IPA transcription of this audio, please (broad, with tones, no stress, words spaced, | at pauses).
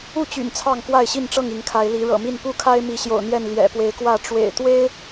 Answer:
u˥˨t͡ɕy̰˨˩n t͡sʰɑ˥˨ŋkwa˥˨ɪ̯ɕi˥˨nʈ͡ʂɤ˥˨ŋ i˨˦ŋkʰa˨˦ɪ̯li˨˦ ɻɤ̰˨˩mi˥˨n pu˥˨kʰa˦ɪ̯ mi˨˦ɕjo̰˨˩ʊ̯n̪jɛ˥˨n ljɛ̰˨˩ pwe˨˦ɪ̯kwä˥˨ ʈ͡ʂwḛ˨˩ɪ̯t̪we˦ɪ̯